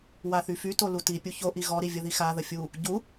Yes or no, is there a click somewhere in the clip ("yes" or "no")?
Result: no